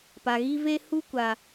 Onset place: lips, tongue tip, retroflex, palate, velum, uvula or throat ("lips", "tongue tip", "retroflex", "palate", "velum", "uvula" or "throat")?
lips